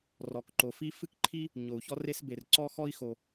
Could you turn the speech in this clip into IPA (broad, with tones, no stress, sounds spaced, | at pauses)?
r ɔ˩ k ǃ o˩ f i˥ f ɨ˥ k ǃʰ i˥ | ɲ o˩ u̯ ç ɔ˥ r e˥ s b e˩ r ǀ ɔ˥ x ɔ˥ i̯ x o˩